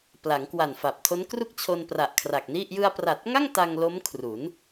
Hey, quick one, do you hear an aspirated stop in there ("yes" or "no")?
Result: yes